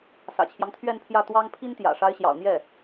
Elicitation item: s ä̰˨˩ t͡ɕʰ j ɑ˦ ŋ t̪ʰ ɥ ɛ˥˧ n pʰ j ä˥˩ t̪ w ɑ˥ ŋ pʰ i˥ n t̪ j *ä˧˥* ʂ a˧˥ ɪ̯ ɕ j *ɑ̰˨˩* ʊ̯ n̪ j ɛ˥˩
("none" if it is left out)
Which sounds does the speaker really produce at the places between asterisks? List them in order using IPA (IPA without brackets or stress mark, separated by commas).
ä̰˨˩, ɑ̰˨˩